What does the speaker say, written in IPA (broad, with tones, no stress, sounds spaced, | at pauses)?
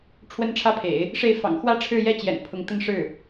ʈ͡ʂʰ w ə˥ n ʈ͡ʂʰ ä˥ pʰ ḛ˨˩˦ ɪ̯ | ʂ e˥˩ ɪ̯ f ɑ̰˨˩ ŋ x w ä˥ ʈ͡ʂʰ ɻ̩˥˧ j ɛ˥˩ t͡ɕ j ɛ̰˨˩ n pʰ ʊ˧˥ ŋ t̪ ə˥˧ n ʂ ɻ̩˥˩